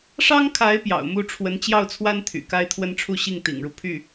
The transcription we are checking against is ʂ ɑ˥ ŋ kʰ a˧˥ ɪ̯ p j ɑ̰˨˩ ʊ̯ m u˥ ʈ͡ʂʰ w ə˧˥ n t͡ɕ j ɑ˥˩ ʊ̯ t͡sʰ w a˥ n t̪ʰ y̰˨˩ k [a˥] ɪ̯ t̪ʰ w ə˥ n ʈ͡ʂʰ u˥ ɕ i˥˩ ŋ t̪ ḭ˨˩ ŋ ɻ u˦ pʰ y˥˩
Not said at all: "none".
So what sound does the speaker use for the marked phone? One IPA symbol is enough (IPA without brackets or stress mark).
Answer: a˥